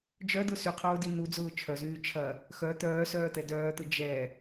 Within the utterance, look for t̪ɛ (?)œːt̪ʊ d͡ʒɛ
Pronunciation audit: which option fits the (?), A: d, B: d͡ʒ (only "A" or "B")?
A